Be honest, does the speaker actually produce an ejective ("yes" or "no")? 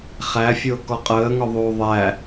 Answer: yes